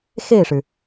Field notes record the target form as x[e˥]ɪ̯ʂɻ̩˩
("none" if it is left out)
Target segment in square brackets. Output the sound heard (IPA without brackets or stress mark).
e˥˩